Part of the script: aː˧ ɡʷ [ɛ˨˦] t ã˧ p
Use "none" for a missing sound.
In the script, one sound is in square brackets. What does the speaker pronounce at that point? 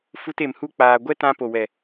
ɛ˦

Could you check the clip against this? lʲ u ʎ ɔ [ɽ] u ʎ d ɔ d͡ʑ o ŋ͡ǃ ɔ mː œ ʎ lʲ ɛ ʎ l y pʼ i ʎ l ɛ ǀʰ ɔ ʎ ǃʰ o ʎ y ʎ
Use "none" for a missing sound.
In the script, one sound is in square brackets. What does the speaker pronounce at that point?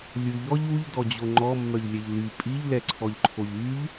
ʎ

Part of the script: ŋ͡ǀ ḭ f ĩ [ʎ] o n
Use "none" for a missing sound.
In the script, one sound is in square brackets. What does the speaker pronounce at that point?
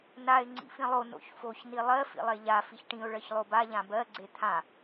lˠ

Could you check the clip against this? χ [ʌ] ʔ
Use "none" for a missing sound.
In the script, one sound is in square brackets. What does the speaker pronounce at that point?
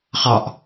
ɑ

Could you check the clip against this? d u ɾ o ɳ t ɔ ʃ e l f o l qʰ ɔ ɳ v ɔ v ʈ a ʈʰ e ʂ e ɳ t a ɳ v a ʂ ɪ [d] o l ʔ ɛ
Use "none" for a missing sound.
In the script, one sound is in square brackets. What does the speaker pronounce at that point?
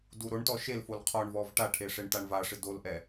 d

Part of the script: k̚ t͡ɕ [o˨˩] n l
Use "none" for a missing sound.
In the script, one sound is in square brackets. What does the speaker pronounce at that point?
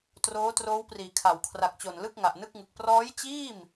o˨˩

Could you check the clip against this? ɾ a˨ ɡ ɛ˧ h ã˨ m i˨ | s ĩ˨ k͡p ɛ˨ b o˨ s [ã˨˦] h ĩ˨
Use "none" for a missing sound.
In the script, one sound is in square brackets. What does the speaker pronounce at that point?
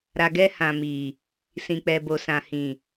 ã˨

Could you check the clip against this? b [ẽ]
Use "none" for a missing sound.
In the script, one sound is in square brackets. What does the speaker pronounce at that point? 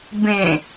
ẽ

